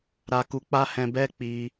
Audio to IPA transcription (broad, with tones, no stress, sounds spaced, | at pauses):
ɾ a˧ k u˧ k͡p a˦ h ɛ̃˧ b ɛ˦ k͡p i˧